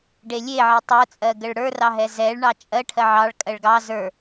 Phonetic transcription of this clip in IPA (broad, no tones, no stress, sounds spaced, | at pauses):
ɖ e lʲ e ʕ e tˤ ə˞ t͡sʼ ɜ ɡ ə ɭ ɽ ə˞ r ɑ ɦ ɛ z ɛ ɭ ɳ ɑ t͡ʃʼ ɜ ʈʰ ɜ ʕ ɑ ɭ kʼ ɜ ɭ ɡ ɑ z ə˞